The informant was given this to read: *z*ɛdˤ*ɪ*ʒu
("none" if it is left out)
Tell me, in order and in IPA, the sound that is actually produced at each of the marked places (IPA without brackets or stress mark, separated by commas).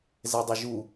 z, ɪ